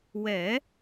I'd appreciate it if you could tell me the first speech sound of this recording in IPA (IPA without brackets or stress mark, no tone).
w